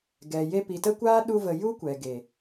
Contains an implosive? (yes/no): yes